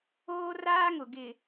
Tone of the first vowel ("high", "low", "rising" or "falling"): high